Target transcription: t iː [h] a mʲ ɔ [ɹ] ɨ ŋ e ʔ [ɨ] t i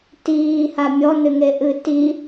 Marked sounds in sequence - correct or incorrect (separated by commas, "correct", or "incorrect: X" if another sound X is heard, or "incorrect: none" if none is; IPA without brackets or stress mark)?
correct, incorrect: n, correct